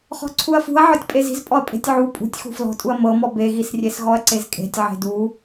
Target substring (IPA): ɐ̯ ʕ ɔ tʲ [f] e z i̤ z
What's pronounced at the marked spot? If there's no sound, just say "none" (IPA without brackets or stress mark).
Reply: pʼ